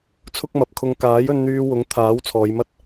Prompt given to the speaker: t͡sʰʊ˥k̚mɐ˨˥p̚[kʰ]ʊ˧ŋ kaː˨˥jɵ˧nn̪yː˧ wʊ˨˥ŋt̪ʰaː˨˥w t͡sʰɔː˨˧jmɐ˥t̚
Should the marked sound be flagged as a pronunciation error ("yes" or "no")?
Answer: no